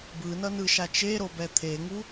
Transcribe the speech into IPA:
b ɯ n ʌ n ɯ ʃ a t͡ʃ e ɾ o b ɛ t̪ʰ e ŋ u

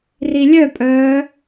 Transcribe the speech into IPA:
r i lʲ œ pʼ œː

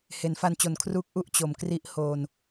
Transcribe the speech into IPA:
h e˩˦ n f a˧ n t͡ɕ o˨˩ n kʰ r uː˦˥ k̚ ʔ u˥˩ ʔ t͡ɕ o˨˩ m k r i˦˥ ʔ h oː˧ n

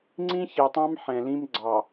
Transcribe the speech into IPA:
ŋ͡ǀ ĩ˦ ç e˨ tˤ ɑ̃˦ m ħ ɛ̃˨ l ĩ˦ m ɡ͡ǀ ɑ˨

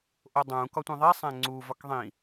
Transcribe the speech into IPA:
ʔ o dˤ ũ k ɒ tʷ ẽ ðˤ i sˤ æ̃ ŋ͡ǀ u v ɒ k ðˤ ĩ

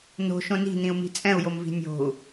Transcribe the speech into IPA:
n o̤ ʃ õ n i̤ n̪ ĩ u̯ m i̤ t͡sʼ ɛ̃ u̯ j o m v i̤ nʲ o̤ u̯

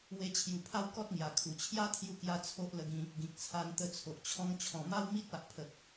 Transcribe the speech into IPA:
w e˧ t͡ɕʰ j u˨˩ pʰ a˦ w k ɔ˦ t̚ ŋ j a˨˩ kʰ u˨˩ t͡ɕʰ j a˦ t̪ʰ j u˧ k j a˧ t͡sʰ o˦ ʔ l ə˧ ɡ ĩ˧ | ɡ ĩ˨ k̚ t͡sʰ a˧ n t̪ ə˧ t͡sʰ o˨ ʔ t͡ɕʰ ɔ̃˧ ŋ t͡ɕʰ ɔ̃˨˩ m a˦ w m i˦ t̚ a˨ ʔ pʰ ə˨ k̚

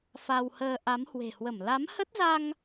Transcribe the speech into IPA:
f a˧ w h əː˧ ʔ a˨˦ m h w e̤˨˩ h w ə˧˩ m l a˨˦ m h ə˦˥ t̚ z a˧ ŋ

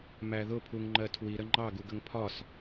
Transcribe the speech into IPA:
m æ ð ʊ pʰ u ŋ ŋ͡ǃ ɜ tʰ w i ɾ ə ŋ͡ǃ ɑ ɡ u ɡ ə ŋ pʰ ɒ s

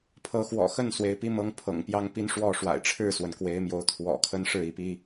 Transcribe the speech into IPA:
pʰ ɤ˨˦ x w ɔ̰˨˩ x ə˥˨ n s w e˨˦ ɪ̯ p i˦ m ɤ˦ ŋ pʰ ɤ̰˨˩ ŋ p j ɑ˦ ŋ p i˦ n ʂ w ɔ˥˨ ʂ w a̰˨˩ ɪ̯ ʈ͡ʂʰ ɻ̩˥˨ s w ə˩ n k w e˨˦ ɪ̯ m j o˨˦ ʊ̯ t̪ʰ w ɔ̰˨˩ kʰ ə˦ n ʂ ɻ̩˥˨ i˨˦ p i˦

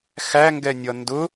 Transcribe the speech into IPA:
x æ ŋ ɡ ɛ nʲ ʌ n d ʊ

